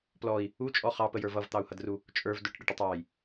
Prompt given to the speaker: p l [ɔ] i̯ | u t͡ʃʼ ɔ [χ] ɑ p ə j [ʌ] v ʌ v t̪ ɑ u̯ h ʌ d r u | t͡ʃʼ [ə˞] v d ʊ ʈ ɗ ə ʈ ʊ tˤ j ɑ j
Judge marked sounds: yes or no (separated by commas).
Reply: yes, yes, no, yes